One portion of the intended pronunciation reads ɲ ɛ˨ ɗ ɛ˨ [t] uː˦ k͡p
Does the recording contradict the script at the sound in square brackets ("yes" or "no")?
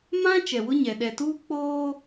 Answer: no